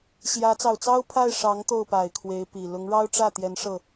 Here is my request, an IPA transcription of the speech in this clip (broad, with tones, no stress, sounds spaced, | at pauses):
ɕ j ä˧˥ t͡s ɑ˨˩ ʊ̯ t͡s ɑ˥ ʊ̯ pʰ a˥˩ ɪ̯ ʂ ɑ˧˥ ŋ t̪ o˥˩ ʊ̯ p a˨˩ ɪ̯ kʰ w e˧˥ ɪ̯ p i˨˩ l ʊ˧˥ ŋ ɻ ɑ˥ ʊ̯ ʈ͡ʂ ä˥˩ t̪ j ɛ˧˥ n ʂ ɤ˥˩